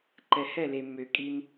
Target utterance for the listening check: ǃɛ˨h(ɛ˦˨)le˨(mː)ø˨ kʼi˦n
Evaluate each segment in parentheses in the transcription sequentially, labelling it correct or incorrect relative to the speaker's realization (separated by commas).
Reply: correct, correct